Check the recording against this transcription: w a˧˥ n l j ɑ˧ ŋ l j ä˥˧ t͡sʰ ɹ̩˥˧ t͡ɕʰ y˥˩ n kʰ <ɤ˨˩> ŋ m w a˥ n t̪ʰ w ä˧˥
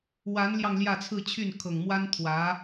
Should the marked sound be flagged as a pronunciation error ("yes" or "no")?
no